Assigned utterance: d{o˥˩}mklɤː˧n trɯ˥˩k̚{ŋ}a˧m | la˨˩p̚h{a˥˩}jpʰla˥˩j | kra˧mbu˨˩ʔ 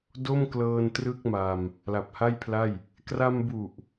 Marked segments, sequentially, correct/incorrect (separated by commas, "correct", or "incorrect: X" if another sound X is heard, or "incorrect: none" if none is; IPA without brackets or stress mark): correct, incorrect: m, correct